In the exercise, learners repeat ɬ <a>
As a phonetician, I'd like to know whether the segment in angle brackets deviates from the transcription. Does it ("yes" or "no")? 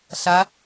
no